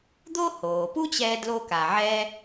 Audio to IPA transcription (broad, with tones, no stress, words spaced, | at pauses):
d̪o˥ hoː˩pu˥t͡ɕɛː˧ dlo˧ka˩ʕɛ˧